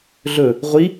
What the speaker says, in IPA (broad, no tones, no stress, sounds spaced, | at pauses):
ɮ ɵ | ʁʷ i